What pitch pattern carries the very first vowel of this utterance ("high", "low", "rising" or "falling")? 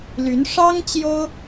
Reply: rising